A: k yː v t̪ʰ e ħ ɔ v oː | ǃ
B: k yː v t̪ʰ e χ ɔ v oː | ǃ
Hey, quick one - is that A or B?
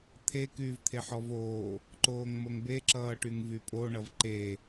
A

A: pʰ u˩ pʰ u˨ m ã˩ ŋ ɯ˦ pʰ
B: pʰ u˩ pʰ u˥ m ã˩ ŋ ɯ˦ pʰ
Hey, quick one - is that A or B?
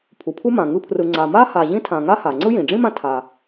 B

